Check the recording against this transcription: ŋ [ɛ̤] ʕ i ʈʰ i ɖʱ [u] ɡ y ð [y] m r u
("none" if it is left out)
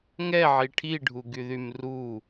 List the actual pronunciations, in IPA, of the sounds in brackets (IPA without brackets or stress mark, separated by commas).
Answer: ɛ, u, y